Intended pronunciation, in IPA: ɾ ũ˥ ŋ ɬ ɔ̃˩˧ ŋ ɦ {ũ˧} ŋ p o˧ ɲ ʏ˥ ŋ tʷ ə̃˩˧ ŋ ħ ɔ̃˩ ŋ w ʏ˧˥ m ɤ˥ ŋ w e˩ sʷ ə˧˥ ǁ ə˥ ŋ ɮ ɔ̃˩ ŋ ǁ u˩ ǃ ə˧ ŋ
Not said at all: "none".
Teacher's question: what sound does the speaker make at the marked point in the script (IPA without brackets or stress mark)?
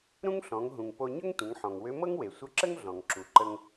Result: ũ˩